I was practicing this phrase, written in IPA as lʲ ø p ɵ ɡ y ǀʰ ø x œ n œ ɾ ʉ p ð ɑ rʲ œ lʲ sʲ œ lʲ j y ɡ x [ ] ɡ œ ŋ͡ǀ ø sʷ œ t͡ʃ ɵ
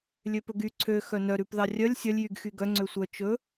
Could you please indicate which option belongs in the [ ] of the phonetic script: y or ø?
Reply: y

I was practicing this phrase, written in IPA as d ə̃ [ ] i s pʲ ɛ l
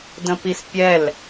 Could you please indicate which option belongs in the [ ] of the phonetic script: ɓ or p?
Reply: p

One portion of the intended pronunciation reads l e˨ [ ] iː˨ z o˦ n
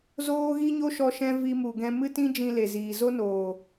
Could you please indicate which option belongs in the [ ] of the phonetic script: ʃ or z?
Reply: z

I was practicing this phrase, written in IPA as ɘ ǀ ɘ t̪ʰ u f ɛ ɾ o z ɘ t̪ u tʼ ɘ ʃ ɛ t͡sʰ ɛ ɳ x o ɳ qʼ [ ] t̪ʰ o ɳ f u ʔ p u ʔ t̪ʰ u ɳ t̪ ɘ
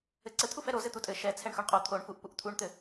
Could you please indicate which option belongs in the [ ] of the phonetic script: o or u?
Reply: o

